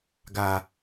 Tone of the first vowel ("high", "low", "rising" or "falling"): low